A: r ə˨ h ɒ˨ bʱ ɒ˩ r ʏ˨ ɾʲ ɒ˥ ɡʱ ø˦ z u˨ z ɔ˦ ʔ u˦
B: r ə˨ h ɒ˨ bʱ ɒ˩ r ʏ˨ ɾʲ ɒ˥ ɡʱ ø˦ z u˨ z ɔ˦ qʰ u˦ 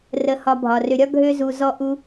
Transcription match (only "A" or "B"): A